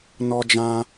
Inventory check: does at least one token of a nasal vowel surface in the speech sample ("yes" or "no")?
yes